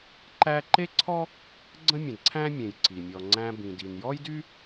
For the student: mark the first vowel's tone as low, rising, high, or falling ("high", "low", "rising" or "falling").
high